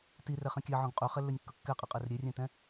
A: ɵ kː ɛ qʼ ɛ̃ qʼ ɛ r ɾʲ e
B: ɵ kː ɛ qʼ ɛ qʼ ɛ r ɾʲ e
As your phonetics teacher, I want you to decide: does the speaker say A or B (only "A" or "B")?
B